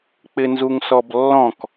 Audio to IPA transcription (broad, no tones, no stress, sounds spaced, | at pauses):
k͡p ɪ n z u ŋ s ɔ b lː ɔ̃ k